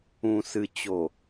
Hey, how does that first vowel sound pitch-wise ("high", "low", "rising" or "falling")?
low